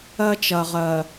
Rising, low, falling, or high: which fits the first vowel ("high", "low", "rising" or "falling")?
high